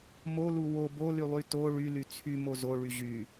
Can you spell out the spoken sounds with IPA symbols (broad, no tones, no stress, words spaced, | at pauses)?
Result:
molu wo bolylˠy to ɭyly t͡sʰymo zoɭy ʑy